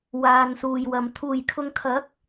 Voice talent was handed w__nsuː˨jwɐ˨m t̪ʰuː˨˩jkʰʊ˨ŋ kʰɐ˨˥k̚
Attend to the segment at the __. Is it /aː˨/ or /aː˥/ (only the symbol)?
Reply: aː˨